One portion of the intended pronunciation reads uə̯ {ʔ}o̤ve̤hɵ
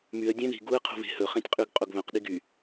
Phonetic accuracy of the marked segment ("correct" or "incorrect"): incorrect